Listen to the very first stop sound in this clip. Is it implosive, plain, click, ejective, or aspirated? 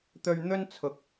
plain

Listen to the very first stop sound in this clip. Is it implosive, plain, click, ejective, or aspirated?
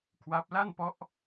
aspirated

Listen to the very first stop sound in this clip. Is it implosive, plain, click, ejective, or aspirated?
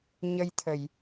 aspirated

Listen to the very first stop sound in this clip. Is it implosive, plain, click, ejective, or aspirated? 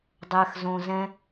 plain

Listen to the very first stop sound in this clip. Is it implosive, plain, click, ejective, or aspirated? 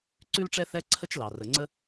click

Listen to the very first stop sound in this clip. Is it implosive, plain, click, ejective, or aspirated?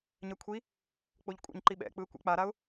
aspirated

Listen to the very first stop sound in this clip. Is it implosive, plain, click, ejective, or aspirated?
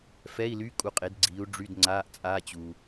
ejective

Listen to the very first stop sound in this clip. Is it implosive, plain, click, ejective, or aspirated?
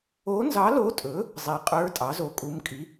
ejective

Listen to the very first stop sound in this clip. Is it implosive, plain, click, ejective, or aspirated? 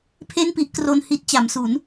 aspirated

